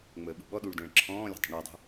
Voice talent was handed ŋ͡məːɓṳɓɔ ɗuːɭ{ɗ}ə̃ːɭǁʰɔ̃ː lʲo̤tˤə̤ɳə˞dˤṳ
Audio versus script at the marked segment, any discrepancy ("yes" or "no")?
yes